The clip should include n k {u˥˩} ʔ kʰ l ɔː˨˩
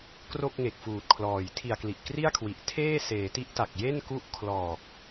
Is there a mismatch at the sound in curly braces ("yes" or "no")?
yes